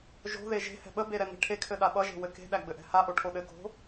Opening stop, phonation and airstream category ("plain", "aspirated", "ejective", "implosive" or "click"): implosive